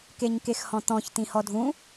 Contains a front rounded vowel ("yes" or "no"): no